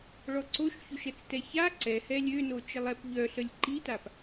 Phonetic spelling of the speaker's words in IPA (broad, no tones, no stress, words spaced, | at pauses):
ɭɔǀoʃ çoʃɛt͡stɛça ǀɛ hɛlʲøno t͡ʃəlˠɛp ʎœɬəlʲ ǃitap